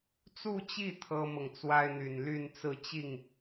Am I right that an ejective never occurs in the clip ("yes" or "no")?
yes